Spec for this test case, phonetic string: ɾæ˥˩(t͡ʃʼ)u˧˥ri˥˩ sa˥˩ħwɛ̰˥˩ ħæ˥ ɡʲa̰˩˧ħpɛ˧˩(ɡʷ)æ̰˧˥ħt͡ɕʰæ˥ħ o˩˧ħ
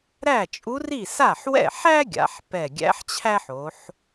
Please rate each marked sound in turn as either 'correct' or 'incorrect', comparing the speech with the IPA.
correct, incorrect: ɡʲ

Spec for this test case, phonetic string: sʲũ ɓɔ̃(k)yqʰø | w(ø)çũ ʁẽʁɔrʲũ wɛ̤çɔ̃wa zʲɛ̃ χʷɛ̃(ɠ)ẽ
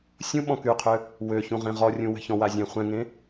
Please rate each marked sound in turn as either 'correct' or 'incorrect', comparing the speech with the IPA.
correct, correct, incorrect: ŋ

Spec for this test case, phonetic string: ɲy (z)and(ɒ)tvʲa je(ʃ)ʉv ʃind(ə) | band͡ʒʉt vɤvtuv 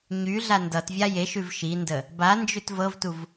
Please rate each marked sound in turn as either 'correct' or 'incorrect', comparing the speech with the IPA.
incorrect: ɮ, incorrect: ʌ, correct, correct

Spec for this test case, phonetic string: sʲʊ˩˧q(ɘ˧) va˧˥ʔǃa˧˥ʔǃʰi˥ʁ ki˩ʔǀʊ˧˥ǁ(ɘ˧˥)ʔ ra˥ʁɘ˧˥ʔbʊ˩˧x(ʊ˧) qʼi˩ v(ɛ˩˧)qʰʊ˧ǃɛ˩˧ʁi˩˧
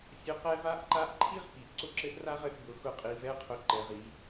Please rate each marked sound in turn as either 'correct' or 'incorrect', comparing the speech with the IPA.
incorrect: ɛ˧, correct, correct, incorrect: ɛ˧˥

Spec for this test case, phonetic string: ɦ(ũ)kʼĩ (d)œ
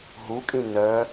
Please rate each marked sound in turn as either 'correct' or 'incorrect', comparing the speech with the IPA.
incorrect: u, incorrect: n

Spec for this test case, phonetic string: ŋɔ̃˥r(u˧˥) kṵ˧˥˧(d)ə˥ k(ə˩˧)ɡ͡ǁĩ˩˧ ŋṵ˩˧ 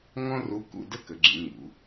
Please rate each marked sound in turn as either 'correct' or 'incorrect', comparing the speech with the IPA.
correct, correct, correct

